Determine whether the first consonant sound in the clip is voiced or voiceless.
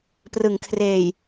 voiceless